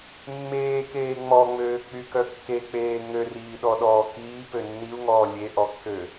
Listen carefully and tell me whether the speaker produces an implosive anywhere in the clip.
yes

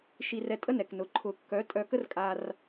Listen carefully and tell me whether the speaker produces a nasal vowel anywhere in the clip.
no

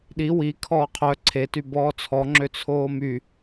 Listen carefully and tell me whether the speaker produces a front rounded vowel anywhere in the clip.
yes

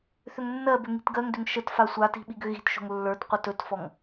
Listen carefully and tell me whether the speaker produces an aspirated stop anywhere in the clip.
no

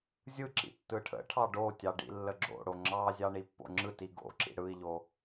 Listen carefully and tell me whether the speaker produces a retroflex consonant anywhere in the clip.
yes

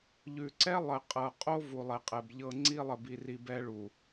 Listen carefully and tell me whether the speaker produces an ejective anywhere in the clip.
yes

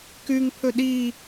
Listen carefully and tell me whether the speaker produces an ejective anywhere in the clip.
no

